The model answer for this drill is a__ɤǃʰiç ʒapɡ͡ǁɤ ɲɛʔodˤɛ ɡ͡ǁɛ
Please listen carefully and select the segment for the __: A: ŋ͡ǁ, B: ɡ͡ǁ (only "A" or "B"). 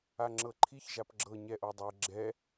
A